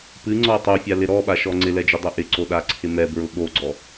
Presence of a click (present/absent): present